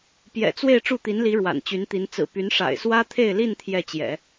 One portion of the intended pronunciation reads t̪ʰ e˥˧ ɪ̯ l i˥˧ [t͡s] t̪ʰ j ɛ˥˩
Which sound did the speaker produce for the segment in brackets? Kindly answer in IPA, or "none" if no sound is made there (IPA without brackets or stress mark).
n